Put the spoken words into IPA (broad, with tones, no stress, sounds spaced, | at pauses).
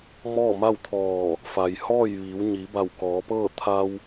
m ɔː˥˨ m a˥˨ w t̪ʰ ɔː˧˩ | f a˩ j h ɔː˥˨ j ʋ iː˩˧ w ɲ i˩˧ b a˧˩ w k ɔː˩˧ p ɤː˥˨ t̪ʰ a˧ w